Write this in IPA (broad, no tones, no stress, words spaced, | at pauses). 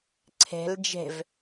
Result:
ǀʰe̤l d͡ʒe̤v